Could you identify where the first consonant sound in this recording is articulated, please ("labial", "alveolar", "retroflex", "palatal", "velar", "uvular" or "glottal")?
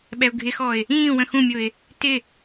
labial